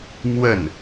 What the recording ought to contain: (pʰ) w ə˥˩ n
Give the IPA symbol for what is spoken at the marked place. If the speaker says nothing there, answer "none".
m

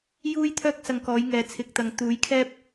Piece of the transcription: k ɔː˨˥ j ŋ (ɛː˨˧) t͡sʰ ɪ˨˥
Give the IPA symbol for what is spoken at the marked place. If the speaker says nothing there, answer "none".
ɛː˨˧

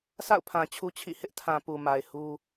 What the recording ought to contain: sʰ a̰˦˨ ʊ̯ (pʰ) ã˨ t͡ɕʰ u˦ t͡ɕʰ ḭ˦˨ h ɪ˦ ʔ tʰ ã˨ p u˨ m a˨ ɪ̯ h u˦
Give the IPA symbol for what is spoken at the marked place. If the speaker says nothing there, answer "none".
pʰ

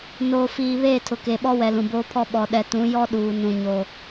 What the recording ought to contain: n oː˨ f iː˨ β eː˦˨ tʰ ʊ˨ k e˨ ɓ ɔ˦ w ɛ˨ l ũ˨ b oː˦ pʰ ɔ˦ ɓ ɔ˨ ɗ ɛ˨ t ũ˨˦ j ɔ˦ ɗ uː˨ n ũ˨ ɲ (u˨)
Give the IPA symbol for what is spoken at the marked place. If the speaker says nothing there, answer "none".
o˨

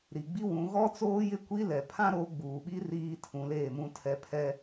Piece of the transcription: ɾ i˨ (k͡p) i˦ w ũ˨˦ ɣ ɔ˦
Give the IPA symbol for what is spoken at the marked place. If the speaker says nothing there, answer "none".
ɡ͡b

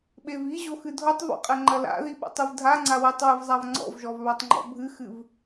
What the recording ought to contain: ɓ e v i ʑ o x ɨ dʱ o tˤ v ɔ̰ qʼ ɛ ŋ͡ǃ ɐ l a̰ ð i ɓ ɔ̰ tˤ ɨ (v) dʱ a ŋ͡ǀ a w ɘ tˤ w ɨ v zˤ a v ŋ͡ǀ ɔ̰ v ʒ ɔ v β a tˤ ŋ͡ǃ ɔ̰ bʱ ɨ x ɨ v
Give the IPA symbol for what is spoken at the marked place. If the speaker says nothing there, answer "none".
v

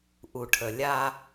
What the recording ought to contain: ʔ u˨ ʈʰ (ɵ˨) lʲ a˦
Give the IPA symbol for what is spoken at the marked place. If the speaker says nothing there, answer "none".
ə˨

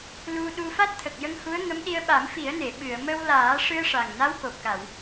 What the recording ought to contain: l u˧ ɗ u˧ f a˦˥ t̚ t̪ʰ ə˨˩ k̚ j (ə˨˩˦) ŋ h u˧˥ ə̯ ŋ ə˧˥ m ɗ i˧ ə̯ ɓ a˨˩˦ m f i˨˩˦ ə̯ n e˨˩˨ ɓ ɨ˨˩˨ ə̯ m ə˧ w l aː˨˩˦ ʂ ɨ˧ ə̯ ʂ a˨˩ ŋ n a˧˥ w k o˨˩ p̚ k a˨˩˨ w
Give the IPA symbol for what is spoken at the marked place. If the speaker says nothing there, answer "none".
ə˧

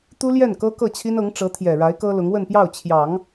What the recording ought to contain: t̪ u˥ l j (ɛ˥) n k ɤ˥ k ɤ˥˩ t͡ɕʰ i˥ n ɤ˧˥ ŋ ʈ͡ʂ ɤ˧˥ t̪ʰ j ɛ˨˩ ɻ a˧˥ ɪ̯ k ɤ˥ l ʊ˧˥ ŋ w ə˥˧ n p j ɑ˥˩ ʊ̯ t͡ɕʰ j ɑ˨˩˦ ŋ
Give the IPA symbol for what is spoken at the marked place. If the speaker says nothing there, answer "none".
ɛ˥˩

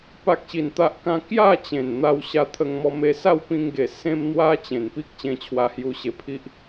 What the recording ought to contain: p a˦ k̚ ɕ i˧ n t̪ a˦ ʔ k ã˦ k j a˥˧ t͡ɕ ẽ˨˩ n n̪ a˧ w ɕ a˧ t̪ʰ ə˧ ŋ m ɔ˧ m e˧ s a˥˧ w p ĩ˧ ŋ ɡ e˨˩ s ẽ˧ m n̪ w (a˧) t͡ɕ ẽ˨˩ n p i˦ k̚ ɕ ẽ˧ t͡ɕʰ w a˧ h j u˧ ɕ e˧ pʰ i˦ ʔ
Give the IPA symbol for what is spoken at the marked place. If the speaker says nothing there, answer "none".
a˧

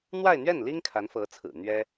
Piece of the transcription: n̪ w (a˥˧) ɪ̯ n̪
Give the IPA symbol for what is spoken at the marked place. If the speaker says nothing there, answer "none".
a˥˧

